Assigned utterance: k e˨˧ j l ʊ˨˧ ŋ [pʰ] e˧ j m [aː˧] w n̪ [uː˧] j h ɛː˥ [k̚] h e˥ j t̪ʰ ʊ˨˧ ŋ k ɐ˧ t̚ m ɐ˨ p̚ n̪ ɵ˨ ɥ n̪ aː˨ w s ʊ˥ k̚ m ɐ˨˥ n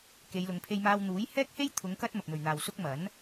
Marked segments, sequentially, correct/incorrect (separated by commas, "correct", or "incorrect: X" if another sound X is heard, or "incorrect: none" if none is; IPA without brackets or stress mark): correct, correct, incorrect: uː˨˥, correct